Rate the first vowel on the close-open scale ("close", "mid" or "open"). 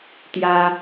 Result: open